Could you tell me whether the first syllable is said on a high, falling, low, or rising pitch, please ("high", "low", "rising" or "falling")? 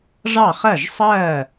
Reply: falling